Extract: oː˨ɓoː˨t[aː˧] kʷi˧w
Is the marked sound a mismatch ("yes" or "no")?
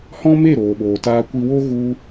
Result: no